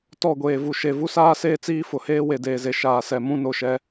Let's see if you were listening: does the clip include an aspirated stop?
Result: no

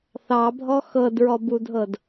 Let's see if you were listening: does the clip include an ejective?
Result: no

